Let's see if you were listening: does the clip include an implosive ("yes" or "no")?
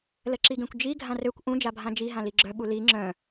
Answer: yes